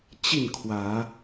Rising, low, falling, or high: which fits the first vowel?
falling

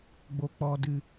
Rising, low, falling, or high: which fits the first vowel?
low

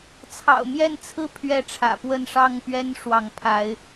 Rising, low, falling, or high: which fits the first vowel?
low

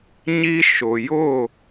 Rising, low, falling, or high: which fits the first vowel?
high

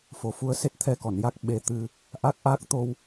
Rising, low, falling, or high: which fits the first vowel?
low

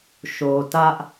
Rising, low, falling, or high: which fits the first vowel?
low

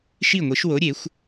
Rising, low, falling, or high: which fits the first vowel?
falling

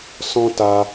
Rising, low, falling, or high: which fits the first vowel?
high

